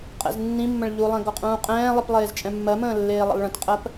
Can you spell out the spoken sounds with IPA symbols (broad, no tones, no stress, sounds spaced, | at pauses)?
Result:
qʼ ɛ̰ z nː ĩ mː ə̃ ɭ ʎ u lˠ ɛ̃ ɡ ɔ qʼ ũː qʼ ɛ̃ː lˠ i p lˠ eː z t͡ʃʼ ɛ̃ mː ɜ m ə̃ː lː eː lˠ ə̰ lˠ ɭ ə̃ t qʼ ɜ p